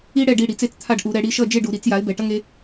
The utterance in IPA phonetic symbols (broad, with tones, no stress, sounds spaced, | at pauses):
i˦ ɽ ɛ˦˨ ɖ i˦˨ ɽ i˩˧ t͡s e˦˨ t͡s t̪ʰ a˦˨ ɖ ʔ u˧˩˧ ɾ ɛ˩˧ ɽ i˦˨ ʃ ʌ˦˨ d͡ʒ e˦˨ ɖ u˧˩˧ ɾ i˧˩˧ t͡s j a˩˥ ɪ̯ b ɛ˩˧ ʈ ʌ˦ ŋ e˩˧